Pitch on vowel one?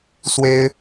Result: high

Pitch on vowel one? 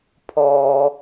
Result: low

